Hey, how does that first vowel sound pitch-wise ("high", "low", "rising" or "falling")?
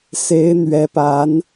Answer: rising